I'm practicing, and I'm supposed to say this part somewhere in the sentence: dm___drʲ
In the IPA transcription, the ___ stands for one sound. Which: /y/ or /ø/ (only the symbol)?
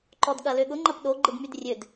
y